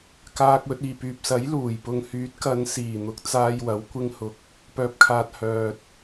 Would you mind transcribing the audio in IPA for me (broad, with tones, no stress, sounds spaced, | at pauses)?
k aː˨ k̚ w ɵ˨ t̚ iː˨˩ p yː˨ p̚ s ɐ˨˥ j l uː˨˩ j p ʊ˨ ŋ h yː˨˥ t̚ k ɐ˨˧ n s iː˨˩ n̪ ʊ˨˥ k̚ t͡s aː˧ j w ɐ˨˥ w kʷ ɪ˧ ŋ h ʊ˨ k̚ | p œː˧ p̚ kʰ aː˧ t̚ h œː˨ t̚